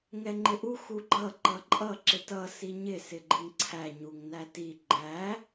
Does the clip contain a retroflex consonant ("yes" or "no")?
no